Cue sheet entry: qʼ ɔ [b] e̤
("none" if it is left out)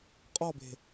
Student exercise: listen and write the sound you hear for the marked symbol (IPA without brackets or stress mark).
b